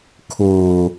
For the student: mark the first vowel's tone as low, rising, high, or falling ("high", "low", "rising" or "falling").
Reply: low